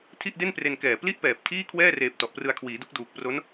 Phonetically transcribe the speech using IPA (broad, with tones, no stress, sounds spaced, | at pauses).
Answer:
tʰ i˥˩ ʔ d e˥˩ n p r e˧ n k ɛː˨˩ p l i˥˩ ʔ p ɛː˨˩ p̚ tʰ iː˥˩ kʰ w ɛː˥˩ r eː˨˩ p̚ t ɔ˨˩ ʔ p r ɯ˧ a̯ kʰ w iː˩˦ d u˦˥ k̚ d uː˨˩ k̚ p r o˦˥ n